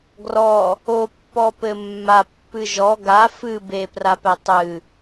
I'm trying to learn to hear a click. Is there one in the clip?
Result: no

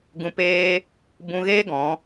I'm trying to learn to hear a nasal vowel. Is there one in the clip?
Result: yes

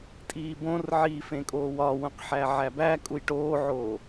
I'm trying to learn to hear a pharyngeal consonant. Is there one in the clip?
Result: yes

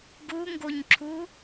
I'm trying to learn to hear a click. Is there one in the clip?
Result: yes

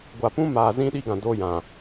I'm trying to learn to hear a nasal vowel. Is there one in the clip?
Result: yes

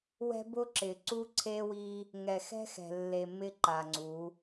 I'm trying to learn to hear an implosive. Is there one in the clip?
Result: no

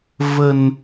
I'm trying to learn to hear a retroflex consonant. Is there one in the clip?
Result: no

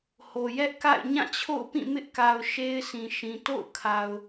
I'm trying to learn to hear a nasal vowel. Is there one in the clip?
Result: yes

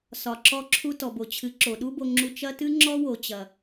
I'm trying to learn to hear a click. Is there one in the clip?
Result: yes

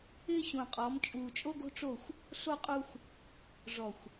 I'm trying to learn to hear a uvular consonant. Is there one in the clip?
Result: yes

